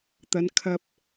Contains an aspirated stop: yes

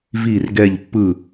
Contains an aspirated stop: no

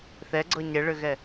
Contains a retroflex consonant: yes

